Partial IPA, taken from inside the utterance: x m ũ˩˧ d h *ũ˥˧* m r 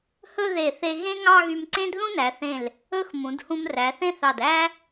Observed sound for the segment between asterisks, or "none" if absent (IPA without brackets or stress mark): ũ˧